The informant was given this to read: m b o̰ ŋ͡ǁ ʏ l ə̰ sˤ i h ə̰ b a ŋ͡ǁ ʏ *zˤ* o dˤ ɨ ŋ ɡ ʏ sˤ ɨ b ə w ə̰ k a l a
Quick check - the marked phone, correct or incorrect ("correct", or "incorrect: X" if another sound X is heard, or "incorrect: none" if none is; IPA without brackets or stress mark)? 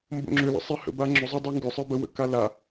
correct